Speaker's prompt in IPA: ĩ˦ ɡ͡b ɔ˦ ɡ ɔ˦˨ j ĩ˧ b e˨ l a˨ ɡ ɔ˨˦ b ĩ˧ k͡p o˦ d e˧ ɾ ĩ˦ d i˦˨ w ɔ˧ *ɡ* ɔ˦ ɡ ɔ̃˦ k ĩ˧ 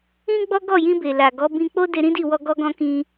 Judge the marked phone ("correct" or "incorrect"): correct